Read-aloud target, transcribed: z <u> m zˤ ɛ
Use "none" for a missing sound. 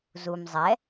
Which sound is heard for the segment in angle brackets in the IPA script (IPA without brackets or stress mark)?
u